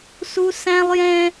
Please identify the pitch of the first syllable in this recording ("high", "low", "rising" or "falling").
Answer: high